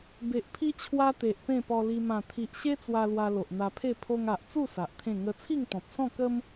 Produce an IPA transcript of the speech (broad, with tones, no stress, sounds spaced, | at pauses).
b e˨ ʔ pʰ i˦ t͡ɕʰ w a˦ t̪ e˨ ʔ p ẽ˥˧ p ɔ˧ l i˧ m ã˨˩ t̪ʰ i˨ ʔ ɕ e˦ t͡s w a˧ l w a˧ l o˨ ʔ n̪ a˧ pʰ e˥˧ pʰ o˧ ŋ a˨ ʔ t͡s u˥˧ s a˨ ʔ t̪ʰ ẽ˥˧ ŋ ə˦ t͡sʰ i˥˧ ŋ t̪ ɔ̃˨ p̚ s ɔ̃˥˧ k ə˦ m